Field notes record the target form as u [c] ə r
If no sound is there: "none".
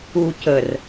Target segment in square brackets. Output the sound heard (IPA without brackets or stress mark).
c